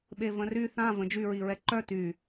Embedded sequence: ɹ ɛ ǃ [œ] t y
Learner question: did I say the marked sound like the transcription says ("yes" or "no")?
yes